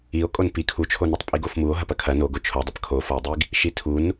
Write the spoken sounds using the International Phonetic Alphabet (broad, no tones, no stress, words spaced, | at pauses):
io̯kʼon pi kʰut͡ʃʰonɐtˤ pʼiɡofmuo̯ ɦɐpɐkʰɐ noɡo t͡ʃʰodˤɐp kʰofɐe̯dˤiɡ | ʃitʰun